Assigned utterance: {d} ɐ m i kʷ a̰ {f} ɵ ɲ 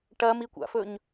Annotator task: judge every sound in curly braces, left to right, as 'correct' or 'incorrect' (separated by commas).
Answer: incorrect, correct